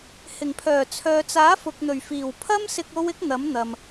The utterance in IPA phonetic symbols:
h ɪ˨˩ ŋ pʰ œː˨˩ t͡sʰ œː˨ t͡s aː˨˥ f ʊ˨ k̚ n̪ ɵ˨˩ ɥ f iː˨˩ w pʰ ɐ˥ m s ɪ˧ k̚ o˥ w ɪ˥ k̚ n̪ ɐ˨˥ m n̪ ɐ˨ m

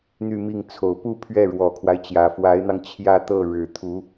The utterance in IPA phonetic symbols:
n̪ y˥˧ m i˥˩ ŋ t͡sʰ o˨˩ ʊ̯ p u˥˧ pʰ ɥ ɛ˥˩ ɻ w ɔ˨˩ kʰ w a˦ ɪ̯ t͡ɕ j ä˨˩ f w a˧˥ ɪ̯ n̪ ɑ˧ ŋ t͡ɕʰ j ä˥˧ t̪ ɤ˥˩ ɻ ɻ̩˨˩ t̪ʰ u˧˥

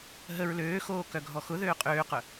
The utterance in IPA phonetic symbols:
ɦ ə ɹ l øː x oː k œ ɡʱ ɔ x ʊ ð øː qʼ øː q œ

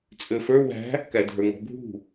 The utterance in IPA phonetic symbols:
t͡sʼ ø f ə˞ w æ̤ | k æ dʱ ə˞ ŋ ɔ̤ bʱ ṳ

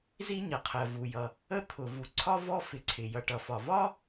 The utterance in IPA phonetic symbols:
z i˥ ɲ ʌ˩ qʰ ɜ˩ v u˩ j ʌ˩ | ə˥ t̪ʰ ʊ˩ v u˩ ǀʰ ɒ˥ v ɔ˥ f ɪ˩ ǀʰ ɪ˩ j ʌ˩ ʈ ʌ˩ f ɒ˩ v ɒ˥

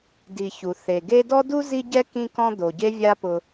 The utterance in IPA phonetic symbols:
d i˨ ç u˩ θ e˩ ɡ e˦ d ɔ˥ d u˥ z i˦ ɟ ɛ˥ k ĩ˦ k ɔ̃˦ d̪ o˩ ɟ e˥ vʲ a˦ p ʊ˨

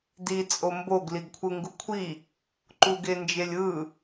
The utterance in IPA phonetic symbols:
d i t͡sʼ o m b o ɡ l i ɡ kʷʰ ɯ ŋ ɡ u kʷʰ i | ǃ u ɡ e n d͡ʒ e lʲ ɯ

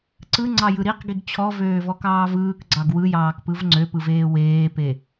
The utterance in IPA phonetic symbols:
ǀ ɯ ŋ͡ǀ ɑ j ɯ ɾ i q ɡ i ɡ t͡ɕʰ ɔ v øː v ɔ k ɑː v ɯː k ɡ͡ǀ ɑ ɡ w ɯ j ɑː k p ɯ v ŋ͡ǀ ø p ɯ v eː w eː p e

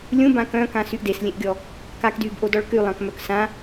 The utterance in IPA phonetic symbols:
lʲ ũ b ã k œ̃ k ã s y ʔ d e s lʲ ẽ ʔ ɡʲ ɔ | k a k d yː b ʔ o d ɔ ɭ k y lˠ ã k m œ k s ã

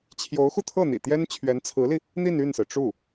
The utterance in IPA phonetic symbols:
t͡ɕʰ j o˧˥ ʊ̯ x u˧ t̪ʰ ɤ˥˩ n̪ ḭ˨˩ t̪ j ɛ˥ n t͡ɕʰ ɥ ɛ˧˥ n t͡sʰ ɹ̩˧˥ l i˧ | n̪ i˥˧ n y˥˩ n s ɹ̩˩ ʈ͡ʂ u˥˩

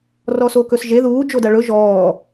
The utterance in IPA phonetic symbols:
r ɔ s o k ɵ s ʒ e ð uː d͡ʒ o d a ɭ ɵ ʒ ɔː

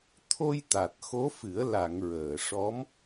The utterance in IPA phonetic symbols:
t̪ʰ o˧ j t̪ a˨˩ t̚ x o˧˥ f ɨ˨˩˦ ə̯ l a˨˩˨ ŋ ɹ əː˨˩˨ ʂ ɔ˧˥ m

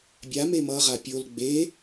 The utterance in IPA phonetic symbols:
bʲ a m e m ʌ ʁ a pʲ o l ɡ͡b e

